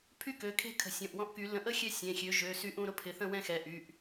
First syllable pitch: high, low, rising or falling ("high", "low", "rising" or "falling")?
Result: high